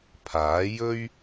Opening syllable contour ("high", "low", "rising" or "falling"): rising